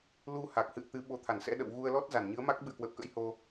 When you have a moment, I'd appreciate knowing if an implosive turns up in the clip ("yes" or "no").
yes